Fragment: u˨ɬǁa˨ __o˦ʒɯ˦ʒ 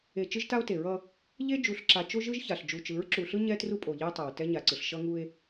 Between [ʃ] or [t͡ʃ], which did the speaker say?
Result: t͡ʃ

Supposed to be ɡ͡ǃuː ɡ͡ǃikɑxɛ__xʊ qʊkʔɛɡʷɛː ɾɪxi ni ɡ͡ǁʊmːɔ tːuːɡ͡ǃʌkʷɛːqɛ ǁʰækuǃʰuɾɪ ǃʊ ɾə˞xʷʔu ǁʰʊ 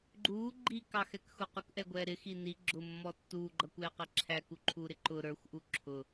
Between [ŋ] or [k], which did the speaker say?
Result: k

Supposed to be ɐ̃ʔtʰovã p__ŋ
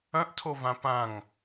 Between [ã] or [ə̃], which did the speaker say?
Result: ã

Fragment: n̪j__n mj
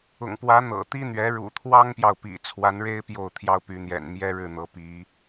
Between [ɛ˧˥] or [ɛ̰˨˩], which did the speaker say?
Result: ɛ̰˨˩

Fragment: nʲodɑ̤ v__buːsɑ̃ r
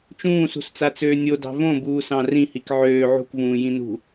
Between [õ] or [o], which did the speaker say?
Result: õ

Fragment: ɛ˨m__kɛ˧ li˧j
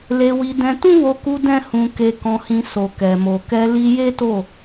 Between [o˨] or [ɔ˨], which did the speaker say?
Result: o˨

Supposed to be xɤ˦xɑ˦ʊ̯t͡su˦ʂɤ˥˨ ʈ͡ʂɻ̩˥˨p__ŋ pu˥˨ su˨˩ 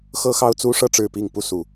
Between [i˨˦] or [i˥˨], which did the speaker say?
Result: i˥˨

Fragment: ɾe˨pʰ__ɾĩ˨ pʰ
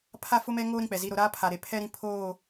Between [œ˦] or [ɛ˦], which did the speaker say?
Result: ɛ˦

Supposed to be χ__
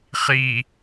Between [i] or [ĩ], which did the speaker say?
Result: i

